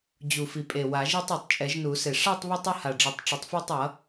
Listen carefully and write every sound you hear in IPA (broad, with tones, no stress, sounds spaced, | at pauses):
d͡ʑ u˨˩ f i˨˩ pʼ e˨˩ w a˨˩˦ ʒ i˥˧ tˤ e˨˩ tˤ t͡ʃʼ ɛ˨˩˦ ʒ n u˨˩˦ s e˨˩ ʂ a˥˧ tˤ β ɯ˥˧ tˤ u˥˧ h a˨˩ ɖ͡ʐ ʌ˨˩˦ tˤ ʈ͡ʂ ʌ˨˩ tˤ f a˥˧ tˤ ʌ˨˩˦